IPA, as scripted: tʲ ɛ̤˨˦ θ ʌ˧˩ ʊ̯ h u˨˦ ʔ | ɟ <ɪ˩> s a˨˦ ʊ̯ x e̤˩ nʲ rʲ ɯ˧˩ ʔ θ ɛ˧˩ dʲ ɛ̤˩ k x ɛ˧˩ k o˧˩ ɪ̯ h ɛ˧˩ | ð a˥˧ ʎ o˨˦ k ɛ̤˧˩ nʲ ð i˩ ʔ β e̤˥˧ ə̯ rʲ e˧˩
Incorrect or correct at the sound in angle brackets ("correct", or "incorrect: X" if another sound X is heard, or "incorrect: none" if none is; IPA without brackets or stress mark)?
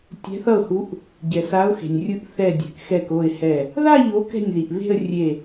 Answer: incorrect: ɛ˩